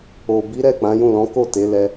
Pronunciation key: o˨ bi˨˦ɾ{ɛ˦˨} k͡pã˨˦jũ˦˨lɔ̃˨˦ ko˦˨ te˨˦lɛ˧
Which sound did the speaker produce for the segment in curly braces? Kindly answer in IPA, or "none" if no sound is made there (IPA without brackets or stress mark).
ɛ˦˨